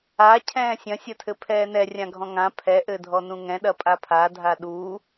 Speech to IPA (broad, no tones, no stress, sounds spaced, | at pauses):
a cʰ ɛ̃ː sʲ ɐ̃ sʲ ɐ tʰ ɘ pʰ ɛː n ɛ rʲ ã ɡʱ ɔ̃ ŋ ã pʰ ɛ ʔ ɘ dʱ ɔ n ũ ŋ ɛ̃ ɗ ɐ pʼ a pʰ a dʱ a ɗ uː